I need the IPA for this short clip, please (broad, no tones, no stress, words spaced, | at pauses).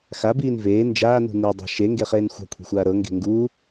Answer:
xabiːn veː nd͡ʒaːnṳ nidˤa̤ ʃeŋɡeχeːn xʷa̤kʷʰi̤xʷaː ɾɤŋɡe̤ ŋɡuː